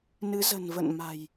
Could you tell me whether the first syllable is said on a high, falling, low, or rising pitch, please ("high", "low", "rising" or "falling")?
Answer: rising